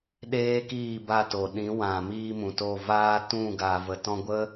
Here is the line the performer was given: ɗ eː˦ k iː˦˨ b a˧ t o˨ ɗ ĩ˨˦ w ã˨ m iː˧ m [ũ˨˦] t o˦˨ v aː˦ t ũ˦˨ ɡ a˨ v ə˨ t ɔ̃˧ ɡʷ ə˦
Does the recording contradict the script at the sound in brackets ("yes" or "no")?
yes